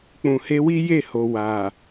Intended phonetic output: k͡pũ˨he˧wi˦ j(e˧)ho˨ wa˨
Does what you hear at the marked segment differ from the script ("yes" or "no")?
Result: yes